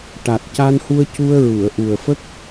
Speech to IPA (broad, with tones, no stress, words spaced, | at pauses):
ʈa˨˩t̚ca˧nhu˧ə̯cu˧ə̯ ɹu˨˩˨ə̯ʔu˨˩ə̯fə˦˥k̚